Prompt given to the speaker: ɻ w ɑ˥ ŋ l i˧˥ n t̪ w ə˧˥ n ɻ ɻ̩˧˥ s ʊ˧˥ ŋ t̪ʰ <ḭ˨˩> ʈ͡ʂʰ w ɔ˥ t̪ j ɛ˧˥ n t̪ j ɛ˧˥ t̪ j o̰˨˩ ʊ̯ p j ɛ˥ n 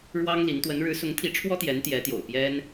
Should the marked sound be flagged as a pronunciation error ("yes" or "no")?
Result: yes